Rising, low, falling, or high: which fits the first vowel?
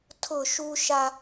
falling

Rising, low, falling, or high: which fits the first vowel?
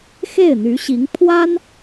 falling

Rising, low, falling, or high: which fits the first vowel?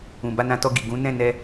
low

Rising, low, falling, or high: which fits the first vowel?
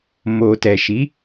low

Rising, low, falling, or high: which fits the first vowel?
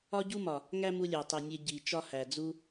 high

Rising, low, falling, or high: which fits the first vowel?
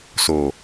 low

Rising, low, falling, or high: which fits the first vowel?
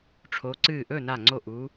rising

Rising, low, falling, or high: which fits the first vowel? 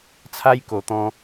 high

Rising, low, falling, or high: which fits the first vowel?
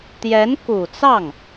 rising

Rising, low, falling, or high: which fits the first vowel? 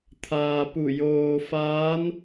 low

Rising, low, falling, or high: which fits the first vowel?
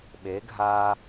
rising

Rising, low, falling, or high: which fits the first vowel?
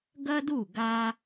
high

